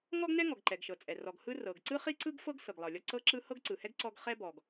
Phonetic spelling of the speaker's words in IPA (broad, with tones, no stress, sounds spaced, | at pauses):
ŋ ɔ˥ ɡ n ɛ˥ ŋ ɔ˩ ɡ ǃ ɛ˩ ɡ ʃ ɤ˩ t͡sʼ ɛ˩ r ɔ˩ ɡ h ɯ˥ r ɤ˩ ɡ ǀ ɯ˥ χ i˥ ǀ ɯ˥ ɡ f ɤ˥ ɡ s ɤ˩ ɡ lˠ ɤ˩ lʲ ɔ˥ ǀ ɤ˥ ǁ ɯ˥ h ɤ˥ ɡ ǀ ɯ˩ h ɛ˥ ɡ ǀ ɔ˥ ɡ χ ɛ˥ b ɔ˩ ɡ